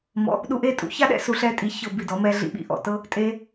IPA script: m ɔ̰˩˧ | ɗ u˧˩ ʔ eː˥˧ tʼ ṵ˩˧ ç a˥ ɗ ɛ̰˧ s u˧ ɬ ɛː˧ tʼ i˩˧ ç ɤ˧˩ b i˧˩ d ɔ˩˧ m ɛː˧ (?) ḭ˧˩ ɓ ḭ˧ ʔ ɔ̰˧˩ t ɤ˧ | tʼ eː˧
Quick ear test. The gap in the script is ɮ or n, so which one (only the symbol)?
ɮ